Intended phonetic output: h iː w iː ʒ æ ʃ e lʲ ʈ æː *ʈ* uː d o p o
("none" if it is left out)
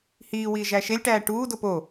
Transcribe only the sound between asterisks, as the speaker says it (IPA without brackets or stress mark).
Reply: ʈ